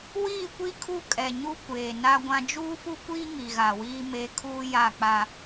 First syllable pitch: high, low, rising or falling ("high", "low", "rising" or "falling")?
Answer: falling